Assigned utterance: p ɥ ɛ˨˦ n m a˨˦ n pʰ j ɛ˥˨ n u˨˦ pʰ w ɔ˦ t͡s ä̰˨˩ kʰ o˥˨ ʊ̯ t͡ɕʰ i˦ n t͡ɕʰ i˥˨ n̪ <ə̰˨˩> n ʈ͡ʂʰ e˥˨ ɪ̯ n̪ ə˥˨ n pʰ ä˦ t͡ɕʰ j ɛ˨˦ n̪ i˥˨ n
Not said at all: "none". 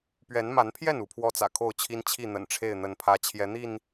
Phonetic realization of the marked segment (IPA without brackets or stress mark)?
ə̰˨˩